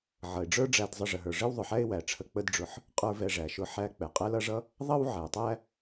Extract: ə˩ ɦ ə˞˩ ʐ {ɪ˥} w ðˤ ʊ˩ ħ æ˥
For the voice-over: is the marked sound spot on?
yes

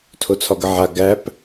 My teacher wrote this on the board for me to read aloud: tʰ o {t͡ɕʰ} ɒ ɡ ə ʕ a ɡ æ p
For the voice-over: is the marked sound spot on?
no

